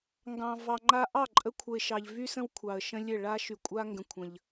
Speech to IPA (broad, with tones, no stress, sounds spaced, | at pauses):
ŋ ɡ ɑ̃˨ v ɑ˨ ŋ͡ǃ a˧ ʔ ɑ˦˨ ǃʼ ə˧ kʷʰ ə˨ ɪ̯ ʃ ɑ˨ ʎ v y˦ s ə̃˦ w kʷʰ ɑ˨ ə̯ ʃ ə̃˦ lʲ ɘ˦˨ ɭ a˦ ʃ y˨ kʷʼ a˦ ŋ ɡ ə̃˧ kʷʰ ə̃˨ ʎ